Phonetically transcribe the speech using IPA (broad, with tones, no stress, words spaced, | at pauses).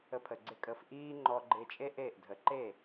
ə˧pʰə˩ɡ͡ǀɪ˥˩kʼə˧f ʔiː˥ŋ͡ǃɔ˧ɡ͡ǃɪ˧ t͡ʃʼe˥ʔeː˥˩ʔdʱə˩˥ ǃe˥˩